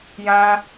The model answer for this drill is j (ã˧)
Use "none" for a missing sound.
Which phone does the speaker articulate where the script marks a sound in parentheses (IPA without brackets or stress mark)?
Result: ã˧